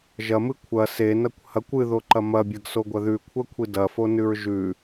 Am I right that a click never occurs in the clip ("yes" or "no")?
no